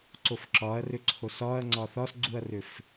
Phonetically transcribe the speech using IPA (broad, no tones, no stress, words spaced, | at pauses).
ǀofǁɒɐ̯rʏǀʰos ɒɐ̯ ŋ͡ǀɒθɒsɡ͡ǀuɐ̯rʏf